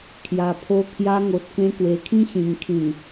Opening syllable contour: low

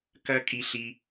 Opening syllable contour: high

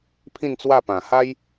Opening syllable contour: falling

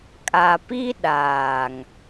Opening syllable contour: low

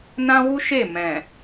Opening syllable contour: high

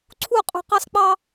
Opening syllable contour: falling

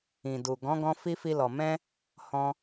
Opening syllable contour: low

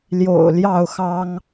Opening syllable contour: low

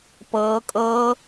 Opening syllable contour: rising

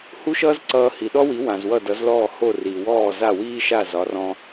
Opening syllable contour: high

